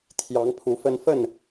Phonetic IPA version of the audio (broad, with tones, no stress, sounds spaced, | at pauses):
t̪ʰ j ɑ˨˦ ŋ pʰ u˨˦ f ə˦ n f ə˥˨ n